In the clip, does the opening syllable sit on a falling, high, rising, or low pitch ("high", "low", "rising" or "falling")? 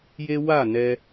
high